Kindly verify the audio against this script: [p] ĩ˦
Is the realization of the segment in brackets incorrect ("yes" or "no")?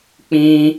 yes